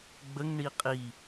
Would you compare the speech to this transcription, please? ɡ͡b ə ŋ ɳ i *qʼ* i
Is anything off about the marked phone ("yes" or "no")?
no